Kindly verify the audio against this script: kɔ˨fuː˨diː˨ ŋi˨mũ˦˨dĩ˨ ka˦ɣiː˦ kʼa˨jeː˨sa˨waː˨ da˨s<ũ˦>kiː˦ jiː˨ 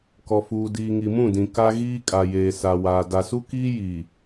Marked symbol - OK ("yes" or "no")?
no